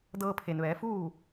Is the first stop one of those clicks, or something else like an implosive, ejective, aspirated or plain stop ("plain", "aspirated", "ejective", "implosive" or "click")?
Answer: plain